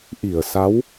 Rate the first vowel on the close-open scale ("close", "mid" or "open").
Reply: close